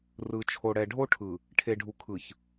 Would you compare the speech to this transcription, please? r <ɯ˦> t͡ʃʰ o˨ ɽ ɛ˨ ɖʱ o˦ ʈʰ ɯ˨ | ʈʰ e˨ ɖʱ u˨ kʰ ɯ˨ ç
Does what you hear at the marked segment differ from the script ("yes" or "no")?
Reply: yes